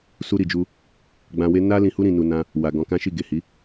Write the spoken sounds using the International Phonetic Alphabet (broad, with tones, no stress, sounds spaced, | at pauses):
s u˧ ɾ i˨ d͡ʒ u˧ | ɡ͡b ã˧ w e˦ n a˦ l ĩ˧ h u˧ ɾ ĩ˨ n u˨ n ã˧ | w a˨ ɡ ɔ̃˨˦ k ã˦ ʃ i˦˨ ɡ e˨ h i˨˦